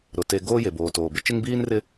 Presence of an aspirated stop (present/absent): absent